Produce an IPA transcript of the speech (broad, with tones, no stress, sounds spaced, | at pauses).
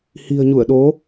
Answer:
h i̤˨˩ ə̯ ɲ u˧˩ ə̯ ɗ o˨˦